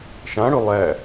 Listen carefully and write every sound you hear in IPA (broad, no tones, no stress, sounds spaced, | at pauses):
ʃ ã ɽ ɵ lˠ æ